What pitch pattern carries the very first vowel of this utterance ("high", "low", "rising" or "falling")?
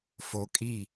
rising